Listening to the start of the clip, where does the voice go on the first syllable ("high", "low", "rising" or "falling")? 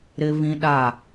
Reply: high